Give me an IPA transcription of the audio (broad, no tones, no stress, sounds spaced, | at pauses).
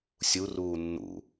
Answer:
sʲ u r uː nː ṵ